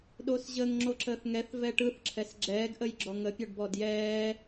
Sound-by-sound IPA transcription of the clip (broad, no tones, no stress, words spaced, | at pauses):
ɗosʑəŋ ŋ͡ǁoǁəːθŋɛθvɛ ʈɯθǁʰɛs ɡ͡ǁɛːɡʔəjɡ͡ǁɔ ŋəpʲɔɖbɔd jɛː